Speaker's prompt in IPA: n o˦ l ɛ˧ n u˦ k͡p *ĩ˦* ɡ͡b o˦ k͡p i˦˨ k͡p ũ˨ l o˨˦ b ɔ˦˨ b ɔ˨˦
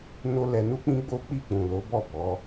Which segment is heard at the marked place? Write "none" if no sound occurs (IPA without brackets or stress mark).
ĩ˦